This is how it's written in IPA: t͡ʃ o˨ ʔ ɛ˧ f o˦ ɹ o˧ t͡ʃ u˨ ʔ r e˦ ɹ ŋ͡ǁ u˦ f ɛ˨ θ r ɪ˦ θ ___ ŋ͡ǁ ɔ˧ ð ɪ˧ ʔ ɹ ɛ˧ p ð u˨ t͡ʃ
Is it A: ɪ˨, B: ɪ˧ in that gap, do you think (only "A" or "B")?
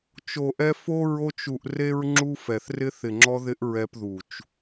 A